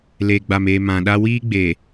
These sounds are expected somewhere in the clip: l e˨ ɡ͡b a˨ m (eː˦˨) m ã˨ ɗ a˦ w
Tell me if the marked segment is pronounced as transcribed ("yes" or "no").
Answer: no